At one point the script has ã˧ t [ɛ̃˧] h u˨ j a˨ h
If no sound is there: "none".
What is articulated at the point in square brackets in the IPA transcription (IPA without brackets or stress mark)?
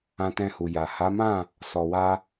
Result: ɛ̃˧